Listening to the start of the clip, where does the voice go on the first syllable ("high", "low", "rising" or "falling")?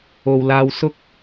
low